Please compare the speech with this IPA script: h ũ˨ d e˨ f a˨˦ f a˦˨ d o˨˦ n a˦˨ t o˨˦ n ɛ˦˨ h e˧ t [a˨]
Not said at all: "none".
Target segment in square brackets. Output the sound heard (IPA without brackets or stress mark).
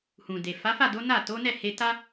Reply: a˦